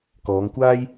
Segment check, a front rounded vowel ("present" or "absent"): absent